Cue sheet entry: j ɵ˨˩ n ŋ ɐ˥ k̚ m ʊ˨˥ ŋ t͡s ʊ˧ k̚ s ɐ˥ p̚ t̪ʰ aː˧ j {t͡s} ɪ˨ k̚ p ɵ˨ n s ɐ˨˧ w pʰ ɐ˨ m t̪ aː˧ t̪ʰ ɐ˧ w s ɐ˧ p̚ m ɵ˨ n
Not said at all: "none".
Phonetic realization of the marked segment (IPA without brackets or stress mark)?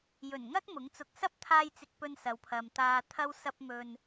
t͡s